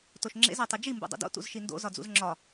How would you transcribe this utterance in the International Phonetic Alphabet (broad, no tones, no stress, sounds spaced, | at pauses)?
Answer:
t o ʃ ŋ͡ǁ ḛ z æ tˤ i d͡ʒ i m b ṵ dˤ ṵ d o̰ t ṵ z ʃ i n d o̰ z ɒ d͡z ṵ z ŋ͡ǁ ɒ